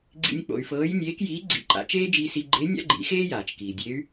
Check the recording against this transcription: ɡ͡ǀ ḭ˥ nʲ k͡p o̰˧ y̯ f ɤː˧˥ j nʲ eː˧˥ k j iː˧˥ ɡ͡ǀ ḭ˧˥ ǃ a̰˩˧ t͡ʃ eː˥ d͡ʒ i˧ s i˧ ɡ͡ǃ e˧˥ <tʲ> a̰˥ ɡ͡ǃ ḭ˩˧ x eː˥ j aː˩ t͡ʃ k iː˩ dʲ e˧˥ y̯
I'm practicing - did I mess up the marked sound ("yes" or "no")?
yes